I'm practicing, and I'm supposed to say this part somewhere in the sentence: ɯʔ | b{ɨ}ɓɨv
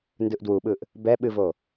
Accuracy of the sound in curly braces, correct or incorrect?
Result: incorrect